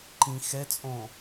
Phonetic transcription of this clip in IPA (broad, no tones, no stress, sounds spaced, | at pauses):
ǃ ĩ x ɛ t͡sʼ õ